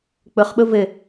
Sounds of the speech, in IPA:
k͡pʊχɓʊ vɘ

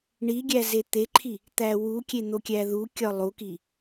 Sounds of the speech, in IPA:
ɳiɡʲæ zet̪eǃʰi | t̪æwukʲe n̪okʲæðukʲɒ lˠuki

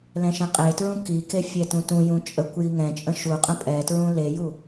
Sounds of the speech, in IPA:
lɛ̃ʃɛ̃qʼetɹũ kike fʲɛtũtũjũ t͡ʃʼəkʷ jiŋɛ̃t͡ʃʼə̃ ʃuqʼə̃ pʼɛtɹũ leju

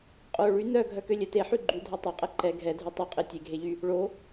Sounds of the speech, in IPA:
qʼo ɭy nœ ɡʱœkølʲɛte ħyɡ͡ǃy dʱœtˤøqʼɛ ǃɛ ɡʱɛdʱy tˤœqʼe tʲeɡʱeʎy | ɭo

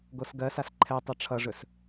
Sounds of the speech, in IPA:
ɡosɡɜsas ǃʰɛ tˤʌʈ͡ʂʰʌʐɵs

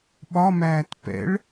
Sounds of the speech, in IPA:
ɓɒmæːt pɛ̰ɭ

